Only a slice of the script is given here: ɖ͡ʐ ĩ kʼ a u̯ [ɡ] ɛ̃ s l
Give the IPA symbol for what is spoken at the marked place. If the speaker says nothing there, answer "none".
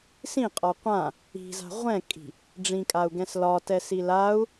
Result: ɡ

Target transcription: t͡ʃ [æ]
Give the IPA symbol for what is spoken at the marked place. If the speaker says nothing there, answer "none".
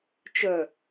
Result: œ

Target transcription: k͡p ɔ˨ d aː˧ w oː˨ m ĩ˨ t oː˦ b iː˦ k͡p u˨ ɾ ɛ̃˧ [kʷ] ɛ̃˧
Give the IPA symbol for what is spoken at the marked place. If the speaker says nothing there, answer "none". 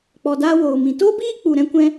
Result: kʷ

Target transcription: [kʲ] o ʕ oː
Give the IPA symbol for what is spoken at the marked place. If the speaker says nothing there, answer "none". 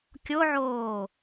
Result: kʲ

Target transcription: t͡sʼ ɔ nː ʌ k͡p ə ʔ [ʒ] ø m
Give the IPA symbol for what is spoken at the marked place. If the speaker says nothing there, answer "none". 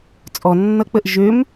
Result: ʒ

